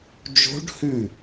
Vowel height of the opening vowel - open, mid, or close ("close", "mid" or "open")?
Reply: mid